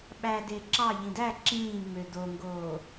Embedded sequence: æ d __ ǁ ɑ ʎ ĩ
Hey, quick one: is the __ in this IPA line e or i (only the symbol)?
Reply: e